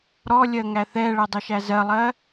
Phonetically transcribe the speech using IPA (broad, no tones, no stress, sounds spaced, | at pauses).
ɾ ɔ lʲ ɜ ŋ æ θ ɛ ɭ ɜ dˤ ə ʃ æ z ɜ lˠ ɜ